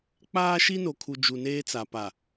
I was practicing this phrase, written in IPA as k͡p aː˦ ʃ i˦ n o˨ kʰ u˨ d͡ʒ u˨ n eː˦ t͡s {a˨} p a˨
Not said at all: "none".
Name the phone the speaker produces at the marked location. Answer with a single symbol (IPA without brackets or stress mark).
a˨